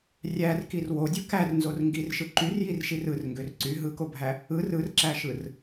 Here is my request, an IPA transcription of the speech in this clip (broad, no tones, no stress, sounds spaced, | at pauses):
rʲ æ r k i r w o dʲ ɯ k æ r n z o r ŋ ɡ i r ʃ ɯ ǃ y r j i r ʃ i r ɯ r ŋ ɡ ø r ǀ y ɦ ɯ k o bʱ æ | ɯ r ɯ r ǁ æ ʃ ɯ r